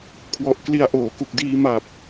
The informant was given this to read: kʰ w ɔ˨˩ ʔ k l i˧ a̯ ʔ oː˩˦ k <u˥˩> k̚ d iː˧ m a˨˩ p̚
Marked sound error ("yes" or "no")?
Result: yes